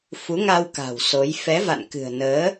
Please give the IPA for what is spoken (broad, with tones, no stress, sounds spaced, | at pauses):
f u˨˦ ŋ a˧ w k a̤˨˩ w s o˨˦ j f ɛ˨˦ v a̰˧˨ n k ɨ̤˨˩ ə̯ n əː˨˦